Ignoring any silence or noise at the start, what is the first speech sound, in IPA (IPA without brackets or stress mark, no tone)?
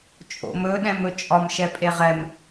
t͡ʃʼ